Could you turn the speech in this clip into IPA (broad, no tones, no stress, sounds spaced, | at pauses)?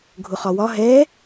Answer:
ɡʱ ʊ χ ɒ w ɒ ɦ ɛ